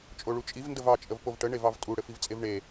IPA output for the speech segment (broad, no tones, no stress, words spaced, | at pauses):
t͡ʃʼoɭut͡ʃʼiv ndəvɑ t͡ʃʼəvpovʈə ɳevɑvtʼu ɽɘfivt͡sʼevɳe